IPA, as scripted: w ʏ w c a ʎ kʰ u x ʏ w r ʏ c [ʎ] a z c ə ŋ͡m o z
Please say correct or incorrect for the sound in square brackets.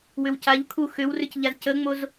correct